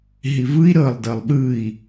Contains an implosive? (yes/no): yes